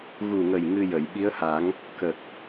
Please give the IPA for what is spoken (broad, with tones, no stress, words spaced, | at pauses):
ɣu˨˩ŋə˨˩j ŋɨ˧jə˨˩˨jɓi˧˥ə̯ha˨˩˦ŋ | kə˨˩k̚